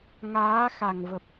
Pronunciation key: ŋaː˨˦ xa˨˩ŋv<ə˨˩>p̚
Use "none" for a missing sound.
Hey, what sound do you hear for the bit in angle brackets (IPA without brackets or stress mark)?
ə˨˩